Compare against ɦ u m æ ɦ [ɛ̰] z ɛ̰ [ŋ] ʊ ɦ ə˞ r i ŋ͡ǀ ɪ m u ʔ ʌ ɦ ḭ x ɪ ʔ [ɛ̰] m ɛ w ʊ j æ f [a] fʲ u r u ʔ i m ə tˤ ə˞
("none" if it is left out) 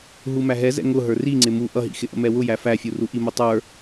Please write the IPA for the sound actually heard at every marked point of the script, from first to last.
ɛ, ŋ, ə̰, æ

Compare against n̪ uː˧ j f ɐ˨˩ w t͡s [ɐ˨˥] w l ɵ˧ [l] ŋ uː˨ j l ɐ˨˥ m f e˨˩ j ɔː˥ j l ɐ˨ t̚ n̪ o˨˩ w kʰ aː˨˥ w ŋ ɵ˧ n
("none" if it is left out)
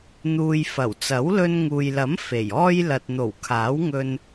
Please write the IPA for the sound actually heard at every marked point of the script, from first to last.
ɐ˨˥, n

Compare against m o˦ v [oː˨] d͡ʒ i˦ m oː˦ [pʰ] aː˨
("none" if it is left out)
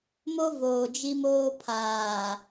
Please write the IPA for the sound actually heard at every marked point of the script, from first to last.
oː˨, pʰ

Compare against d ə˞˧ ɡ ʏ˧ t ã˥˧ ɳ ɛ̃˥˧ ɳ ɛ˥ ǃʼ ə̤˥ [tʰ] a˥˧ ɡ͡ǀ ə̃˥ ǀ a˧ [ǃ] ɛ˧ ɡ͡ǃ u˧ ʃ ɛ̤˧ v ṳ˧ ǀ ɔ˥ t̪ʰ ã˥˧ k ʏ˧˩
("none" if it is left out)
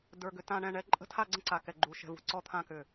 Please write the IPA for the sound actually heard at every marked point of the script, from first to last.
tʰ, k

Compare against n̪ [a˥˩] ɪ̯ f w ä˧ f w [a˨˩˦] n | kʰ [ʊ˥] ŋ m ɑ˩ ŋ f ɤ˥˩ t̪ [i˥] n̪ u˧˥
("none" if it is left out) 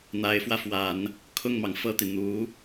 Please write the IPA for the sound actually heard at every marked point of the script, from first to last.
a˧˥, a˨˩˦, ʊ˥˩, i˩

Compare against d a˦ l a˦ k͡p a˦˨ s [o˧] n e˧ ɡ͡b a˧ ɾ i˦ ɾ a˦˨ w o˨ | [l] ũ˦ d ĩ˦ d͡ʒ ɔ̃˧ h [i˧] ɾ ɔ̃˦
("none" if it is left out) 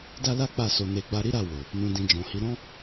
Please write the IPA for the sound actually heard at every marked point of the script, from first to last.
o˧, n, i˦

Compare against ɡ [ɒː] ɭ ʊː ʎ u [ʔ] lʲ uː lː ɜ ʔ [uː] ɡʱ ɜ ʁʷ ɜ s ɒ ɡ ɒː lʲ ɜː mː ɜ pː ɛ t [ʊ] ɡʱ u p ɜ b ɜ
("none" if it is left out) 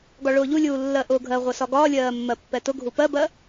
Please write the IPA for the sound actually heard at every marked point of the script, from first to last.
ɒ, none, ʊː, ʊ

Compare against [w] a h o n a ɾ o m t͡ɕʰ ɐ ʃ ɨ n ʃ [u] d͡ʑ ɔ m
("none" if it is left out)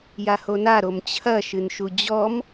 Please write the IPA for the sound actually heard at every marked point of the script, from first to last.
j, u

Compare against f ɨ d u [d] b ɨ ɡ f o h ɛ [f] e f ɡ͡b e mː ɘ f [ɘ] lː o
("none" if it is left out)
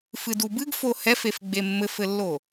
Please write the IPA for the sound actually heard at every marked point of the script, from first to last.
none, f, ɘ

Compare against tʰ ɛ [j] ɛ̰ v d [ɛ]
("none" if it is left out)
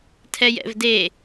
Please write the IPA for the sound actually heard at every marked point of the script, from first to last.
j, e

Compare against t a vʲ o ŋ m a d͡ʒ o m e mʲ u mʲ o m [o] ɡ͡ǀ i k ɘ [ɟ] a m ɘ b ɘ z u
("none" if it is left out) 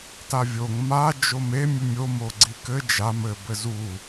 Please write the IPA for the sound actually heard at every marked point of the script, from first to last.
o, d͡ʒ

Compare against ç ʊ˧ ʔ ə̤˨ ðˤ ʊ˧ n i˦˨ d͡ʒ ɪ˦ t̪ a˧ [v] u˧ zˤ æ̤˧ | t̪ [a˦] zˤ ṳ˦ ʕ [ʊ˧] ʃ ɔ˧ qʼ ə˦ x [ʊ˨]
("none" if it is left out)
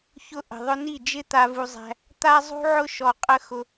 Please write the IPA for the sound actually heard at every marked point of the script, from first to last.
v, a˦, ʊ˦, ʊ˧

